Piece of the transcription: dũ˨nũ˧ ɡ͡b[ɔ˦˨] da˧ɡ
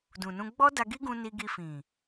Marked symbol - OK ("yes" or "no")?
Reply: no